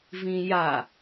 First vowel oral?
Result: no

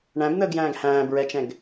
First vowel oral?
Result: no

